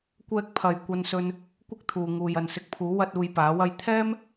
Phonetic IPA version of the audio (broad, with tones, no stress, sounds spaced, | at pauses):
kʷ ɛː˧ k̚ pʰ ɐ˨ j kʷ ɐ˧ n s ɵ˧ n | kʷ ɪ˥ k̚ t̪ʰ uː˨ ŋ uː˨ j ɐ˨ n s ɪ˧ k̚ pʰ uː˨˥ w ɐ˥ t̚ uː˧ j p aː˨˥ w ɐ˥ j t̪ʰ ɛː˥ m